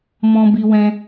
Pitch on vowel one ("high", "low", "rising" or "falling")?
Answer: high